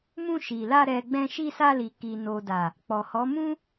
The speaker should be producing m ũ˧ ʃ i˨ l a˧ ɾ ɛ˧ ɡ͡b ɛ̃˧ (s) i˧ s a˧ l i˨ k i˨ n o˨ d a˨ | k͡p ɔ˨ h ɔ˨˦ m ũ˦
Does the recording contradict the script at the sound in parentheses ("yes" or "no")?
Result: yes